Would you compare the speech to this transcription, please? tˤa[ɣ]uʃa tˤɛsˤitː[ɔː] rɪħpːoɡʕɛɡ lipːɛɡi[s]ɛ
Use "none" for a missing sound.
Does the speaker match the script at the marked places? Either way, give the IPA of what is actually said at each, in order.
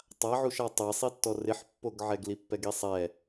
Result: ʕ, ɔ, sˤ

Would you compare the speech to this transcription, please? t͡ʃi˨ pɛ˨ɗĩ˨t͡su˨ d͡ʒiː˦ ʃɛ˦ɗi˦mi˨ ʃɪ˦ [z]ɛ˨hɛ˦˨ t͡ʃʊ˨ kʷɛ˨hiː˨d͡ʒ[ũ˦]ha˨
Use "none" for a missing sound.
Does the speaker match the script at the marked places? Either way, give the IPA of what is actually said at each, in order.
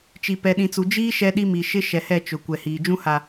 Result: ʃ, ũ˦

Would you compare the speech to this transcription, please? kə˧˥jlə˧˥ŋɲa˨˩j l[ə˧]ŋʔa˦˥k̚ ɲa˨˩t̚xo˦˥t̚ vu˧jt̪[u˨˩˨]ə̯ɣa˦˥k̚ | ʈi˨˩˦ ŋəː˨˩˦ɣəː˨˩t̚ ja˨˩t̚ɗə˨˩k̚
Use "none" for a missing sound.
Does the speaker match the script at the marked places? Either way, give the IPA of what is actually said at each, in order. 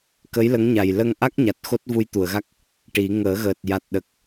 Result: ə˧, u˨˩˨

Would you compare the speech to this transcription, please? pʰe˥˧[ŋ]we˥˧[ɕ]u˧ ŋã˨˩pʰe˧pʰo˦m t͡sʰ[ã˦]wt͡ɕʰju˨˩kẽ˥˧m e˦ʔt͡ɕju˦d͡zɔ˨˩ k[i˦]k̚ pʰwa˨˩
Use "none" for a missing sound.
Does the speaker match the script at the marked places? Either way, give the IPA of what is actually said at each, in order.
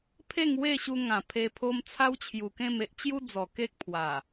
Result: ŋ, ɕ, a˦, e˦

